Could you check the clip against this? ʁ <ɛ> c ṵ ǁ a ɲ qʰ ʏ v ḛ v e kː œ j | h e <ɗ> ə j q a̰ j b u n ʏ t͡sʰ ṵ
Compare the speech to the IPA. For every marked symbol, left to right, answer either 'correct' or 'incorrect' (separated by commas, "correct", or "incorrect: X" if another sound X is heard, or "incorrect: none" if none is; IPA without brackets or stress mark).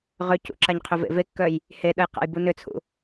incorrect: ʏ, correct